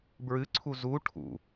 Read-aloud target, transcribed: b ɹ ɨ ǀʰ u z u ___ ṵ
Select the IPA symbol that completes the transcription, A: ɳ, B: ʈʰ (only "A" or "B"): B